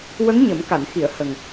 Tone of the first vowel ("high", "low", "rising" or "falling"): rising